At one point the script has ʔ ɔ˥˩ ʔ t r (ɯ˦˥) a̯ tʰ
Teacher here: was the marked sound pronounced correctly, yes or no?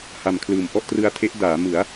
no